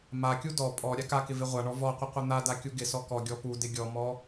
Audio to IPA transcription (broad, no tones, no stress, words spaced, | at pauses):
makʲu dɔ pʼɔ ɾʲakakɪ vɪʁʷaɳɔ vɔqʷɪ qʷɪn̪ada kʲuɡɪsɔ kɔɡʲɔ pudɪ ɡʲɔmɔ